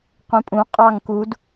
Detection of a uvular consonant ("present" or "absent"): present